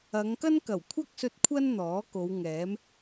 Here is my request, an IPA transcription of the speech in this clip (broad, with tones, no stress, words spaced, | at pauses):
ɐ˨˧ŋkɐ˥n kɐ˨˩wkʷʰɐ˥k̚sɵ˧t̚ kʷʰɐ˥n n̪ɔː˨˥ ko˨˧wŋɛː˨˥m